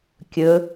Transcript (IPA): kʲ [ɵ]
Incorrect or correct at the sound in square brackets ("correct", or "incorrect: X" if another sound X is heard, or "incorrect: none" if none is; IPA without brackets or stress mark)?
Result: correct